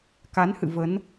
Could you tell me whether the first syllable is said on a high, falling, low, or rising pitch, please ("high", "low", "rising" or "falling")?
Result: rising